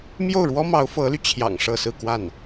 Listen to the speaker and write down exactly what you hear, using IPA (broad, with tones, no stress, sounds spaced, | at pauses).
m j o˥˩ ʊ̯ ɻ w ɔ˥ m ɑ˧˥ ʊ̯ f ɤ˧˥ l y˧ t͡ɕʰ j ɑ̰˨˩ ŋ ʂ ɤ˥˧ s ɹ̩˥˧ k w a˥˩ n